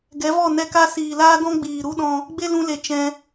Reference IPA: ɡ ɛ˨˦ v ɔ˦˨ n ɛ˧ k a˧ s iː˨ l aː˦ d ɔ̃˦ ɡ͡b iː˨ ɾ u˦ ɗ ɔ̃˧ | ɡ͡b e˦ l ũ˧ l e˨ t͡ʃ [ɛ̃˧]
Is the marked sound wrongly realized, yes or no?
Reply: no